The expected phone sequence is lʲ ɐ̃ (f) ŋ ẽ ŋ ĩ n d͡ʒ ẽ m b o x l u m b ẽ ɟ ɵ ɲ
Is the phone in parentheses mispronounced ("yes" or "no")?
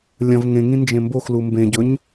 yes